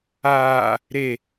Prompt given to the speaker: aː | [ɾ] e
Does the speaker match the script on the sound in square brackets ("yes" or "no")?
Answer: yes